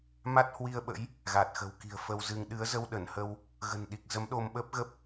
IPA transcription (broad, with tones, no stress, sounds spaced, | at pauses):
m a˦˥ t̚ h w i˧ ə̯ ɓ ə̰˧˥ j | ɣ a˨˩ t̚ x ə̤˨˩ w k i̤˨˩ ə̯ f ə˧ w z ɨ˧ ŋ ɗ ɨ˨˦ ə̯ z ə˧ w ɗ ə˧˩ n h ə˧ w | ɣ ə̤˨˩ n ɗ i˨˩ k̚ z ə˨˦ m ɗ o˧ m ɓ əː˦˥ p̚ ɣ ə˦˥ p̚